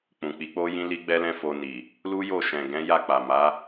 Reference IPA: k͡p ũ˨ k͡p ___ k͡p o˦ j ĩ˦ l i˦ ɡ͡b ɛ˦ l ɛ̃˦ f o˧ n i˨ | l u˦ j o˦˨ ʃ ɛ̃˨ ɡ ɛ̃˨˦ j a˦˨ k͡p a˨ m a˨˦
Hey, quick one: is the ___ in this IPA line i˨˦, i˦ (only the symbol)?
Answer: i˨˦